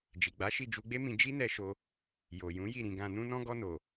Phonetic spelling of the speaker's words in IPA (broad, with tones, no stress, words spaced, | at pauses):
d͡ʒi˨ɡ͡ba˨˦ʃi˦˨ d͡ʒu˧ɡ͡be˦mĩ˧ d͡ʒi˦nɛ˧ʃo˧ | jo˨jũ˨˦ji˦˨ ɾĩ˨ɡã˨ nũ˧nɔ̃˧ ɡɔ˧no˨